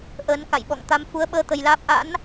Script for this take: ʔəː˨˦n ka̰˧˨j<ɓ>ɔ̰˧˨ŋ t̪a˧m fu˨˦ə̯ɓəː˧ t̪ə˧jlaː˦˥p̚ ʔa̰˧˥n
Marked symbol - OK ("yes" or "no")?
yes